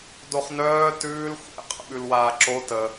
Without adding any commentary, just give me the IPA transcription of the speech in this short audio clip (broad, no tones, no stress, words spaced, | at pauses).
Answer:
doχnœː tʉːl xʷɛ̰ qʼə̰ɓʉlwaːǁo tə